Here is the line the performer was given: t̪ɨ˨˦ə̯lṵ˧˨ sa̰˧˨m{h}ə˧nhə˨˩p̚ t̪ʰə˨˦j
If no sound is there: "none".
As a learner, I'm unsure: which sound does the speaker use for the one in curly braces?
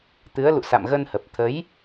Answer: ɣ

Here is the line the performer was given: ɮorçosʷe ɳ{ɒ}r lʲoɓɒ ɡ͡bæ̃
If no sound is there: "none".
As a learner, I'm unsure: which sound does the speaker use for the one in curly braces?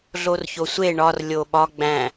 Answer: ɒ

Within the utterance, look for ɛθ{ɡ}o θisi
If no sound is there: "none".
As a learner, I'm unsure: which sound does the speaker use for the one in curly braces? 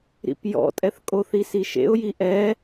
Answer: kʼ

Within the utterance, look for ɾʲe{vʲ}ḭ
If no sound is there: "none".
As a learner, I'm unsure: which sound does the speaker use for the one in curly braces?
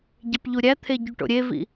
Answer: v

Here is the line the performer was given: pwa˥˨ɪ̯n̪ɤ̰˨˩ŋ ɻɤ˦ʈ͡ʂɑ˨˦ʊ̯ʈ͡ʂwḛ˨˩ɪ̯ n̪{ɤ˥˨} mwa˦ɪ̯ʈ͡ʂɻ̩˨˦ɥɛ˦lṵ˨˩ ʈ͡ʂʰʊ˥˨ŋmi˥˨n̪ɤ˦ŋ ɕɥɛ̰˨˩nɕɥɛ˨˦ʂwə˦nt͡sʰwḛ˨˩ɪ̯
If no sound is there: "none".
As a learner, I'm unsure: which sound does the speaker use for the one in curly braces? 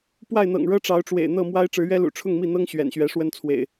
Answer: ɤ˥˨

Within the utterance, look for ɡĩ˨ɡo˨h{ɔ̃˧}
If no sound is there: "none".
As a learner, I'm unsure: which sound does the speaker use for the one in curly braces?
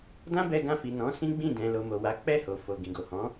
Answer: ɔ̃˨˦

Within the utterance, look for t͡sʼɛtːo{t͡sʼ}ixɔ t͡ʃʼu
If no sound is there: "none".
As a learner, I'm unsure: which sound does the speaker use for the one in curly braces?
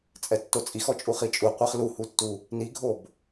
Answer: t͡sʼ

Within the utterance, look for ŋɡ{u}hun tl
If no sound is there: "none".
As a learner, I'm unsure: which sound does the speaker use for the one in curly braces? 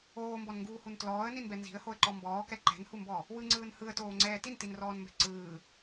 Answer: uː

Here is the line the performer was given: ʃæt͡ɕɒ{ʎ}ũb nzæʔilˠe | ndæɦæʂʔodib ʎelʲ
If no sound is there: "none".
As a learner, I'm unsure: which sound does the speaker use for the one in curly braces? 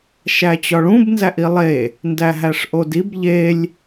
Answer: ɭ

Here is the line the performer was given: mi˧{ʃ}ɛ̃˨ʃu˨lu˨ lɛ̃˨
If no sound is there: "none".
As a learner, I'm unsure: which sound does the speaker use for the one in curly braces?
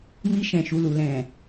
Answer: ʃ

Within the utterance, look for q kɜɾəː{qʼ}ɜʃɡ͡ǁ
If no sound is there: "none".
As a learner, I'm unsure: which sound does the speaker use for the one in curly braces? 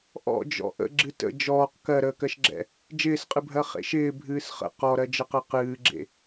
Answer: k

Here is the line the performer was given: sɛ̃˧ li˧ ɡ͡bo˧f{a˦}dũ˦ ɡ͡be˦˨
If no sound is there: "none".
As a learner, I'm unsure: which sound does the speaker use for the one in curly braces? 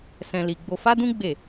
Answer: a˦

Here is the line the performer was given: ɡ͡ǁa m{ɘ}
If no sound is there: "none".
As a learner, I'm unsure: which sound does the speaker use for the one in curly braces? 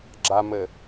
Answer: ɘ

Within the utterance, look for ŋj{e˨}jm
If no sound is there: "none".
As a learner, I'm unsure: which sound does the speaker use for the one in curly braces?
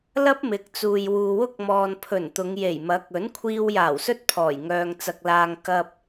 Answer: e˨˩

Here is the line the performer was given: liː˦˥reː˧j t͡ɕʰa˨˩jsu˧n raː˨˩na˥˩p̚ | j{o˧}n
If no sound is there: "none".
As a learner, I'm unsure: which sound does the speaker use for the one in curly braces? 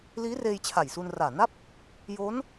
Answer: o˦˥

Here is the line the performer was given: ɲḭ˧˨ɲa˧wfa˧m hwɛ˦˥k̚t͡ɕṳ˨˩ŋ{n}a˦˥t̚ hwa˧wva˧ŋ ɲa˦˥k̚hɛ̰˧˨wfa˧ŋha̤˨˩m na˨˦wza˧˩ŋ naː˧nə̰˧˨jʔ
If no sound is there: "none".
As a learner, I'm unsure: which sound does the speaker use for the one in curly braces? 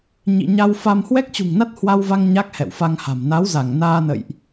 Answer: n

